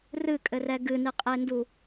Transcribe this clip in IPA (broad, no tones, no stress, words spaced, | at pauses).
rɨkʼɘrɛ ɡɨniqʼendu